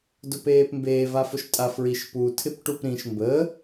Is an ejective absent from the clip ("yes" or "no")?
no